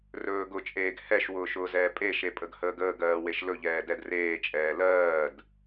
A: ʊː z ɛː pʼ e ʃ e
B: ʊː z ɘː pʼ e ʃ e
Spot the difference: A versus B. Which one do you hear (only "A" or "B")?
A